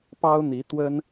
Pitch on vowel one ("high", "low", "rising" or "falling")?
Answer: high